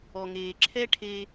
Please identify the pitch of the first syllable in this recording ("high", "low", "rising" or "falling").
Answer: low